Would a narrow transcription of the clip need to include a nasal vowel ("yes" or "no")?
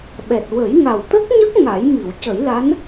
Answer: no